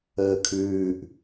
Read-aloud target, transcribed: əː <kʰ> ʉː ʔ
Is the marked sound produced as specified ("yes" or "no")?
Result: yes